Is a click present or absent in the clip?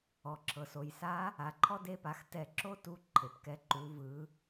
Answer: present